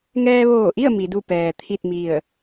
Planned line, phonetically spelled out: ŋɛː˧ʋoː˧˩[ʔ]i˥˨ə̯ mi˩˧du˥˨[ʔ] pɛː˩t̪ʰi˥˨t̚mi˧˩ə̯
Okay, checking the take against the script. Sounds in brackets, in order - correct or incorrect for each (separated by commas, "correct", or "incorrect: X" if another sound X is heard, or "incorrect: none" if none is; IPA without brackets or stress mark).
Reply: correct, incorrect: none